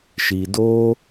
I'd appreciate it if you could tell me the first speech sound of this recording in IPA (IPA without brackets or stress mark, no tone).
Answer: ʃ